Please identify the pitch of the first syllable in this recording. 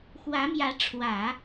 rising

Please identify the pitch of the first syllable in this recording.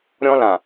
high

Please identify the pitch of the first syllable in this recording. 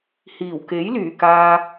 low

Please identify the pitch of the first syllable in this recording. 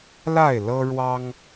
falling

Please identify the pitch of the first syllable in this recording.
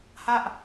falling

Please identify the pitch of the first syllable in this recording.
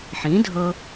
rising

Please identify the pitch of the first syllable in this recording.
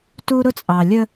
high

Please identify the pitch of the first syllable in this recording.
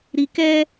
low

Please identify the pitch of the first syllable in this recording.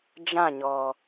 falling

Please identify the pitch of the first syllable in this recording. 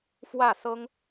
falling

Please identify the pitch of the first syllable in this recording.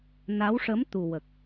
rising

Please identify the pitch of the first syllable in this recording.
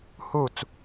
falling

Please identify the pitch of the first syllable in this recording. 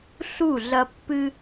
falling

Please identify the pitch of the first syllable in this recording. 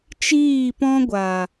falling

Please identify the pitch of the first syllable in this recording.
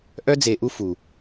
high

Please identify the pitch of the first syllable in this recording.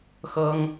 high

